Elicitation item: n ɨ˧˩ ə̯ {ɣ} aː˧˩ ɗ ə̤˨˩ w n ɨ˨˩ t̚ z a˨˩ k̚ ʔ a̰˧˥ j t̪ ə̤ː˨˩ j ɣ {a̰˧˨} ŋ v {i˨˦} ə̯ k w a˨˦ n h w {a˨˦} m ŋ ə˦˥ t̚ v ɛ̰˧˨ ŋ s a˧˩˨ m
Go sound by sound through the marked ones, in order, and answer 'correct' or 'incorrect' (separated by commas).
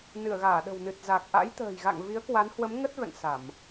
correct, correct, correct, incorrect